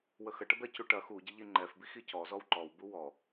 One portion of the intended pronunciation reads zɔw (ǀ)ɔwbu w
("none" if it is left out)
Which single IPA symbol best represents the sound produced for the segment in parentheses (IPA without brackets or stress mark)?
ǃ